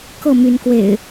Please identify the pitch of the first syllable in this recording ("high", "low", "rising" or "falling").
falling